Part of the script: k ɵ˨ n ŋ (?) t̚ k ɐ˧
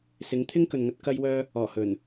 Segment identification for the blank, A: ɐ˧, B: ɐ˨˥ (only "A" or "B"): A